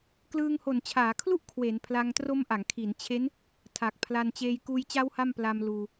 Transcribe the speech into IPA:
k l ɯː˧ ŋ h o˨˩ n t͡ɕʰ aː˩˦ kʰ l u˥˩ ʔ kʰ w e˩˦ n pʰ l a˧ ŋ t r o˦˥ m ʔ a˩˦ ŋ kʰ i˩˦ n t͡ɕʰ e˦˥ n | tʰ a˨˩ k̚ pʰ l a˧ n t͡ɕ eː˧ j k uː˧ j t͡ɕ a˦˥ w h a˥˩ m p l a˧ m l uː˧

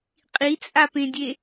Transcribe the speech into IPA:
qʼ i t͡sʼ a p ẽ dʲ e

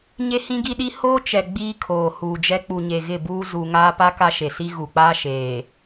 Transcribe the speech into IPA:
ɲ e˦ h ĩ˦ ɡ i˦ ɗ i˦ h oː˦ t͡ʃ ɛ˨ ɡ͡b iː˦ kʰ oː˨ h uː˨ d͡ʒ ɛ˦ k͡p u˨ ɲ e˨ ɣ ɪ˦˨ b uː˦ z u˨ ŋ aː˦ p a˦ k a˦ ʃ e˨ s i˦ ɣ u˨ k͡p aː˦ ʃ eː˨

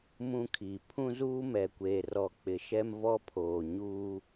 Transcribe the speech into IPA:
m ũ˦ kʰ iː˨ pʰ ũ˦ z uː˦ m ɛ˨ kʷ eː˨ r ɔ˨ k͡p ɪ˨ ʃ ɛ˦ m v ɔ˦ pʰ oː˨ ɲ uː˦

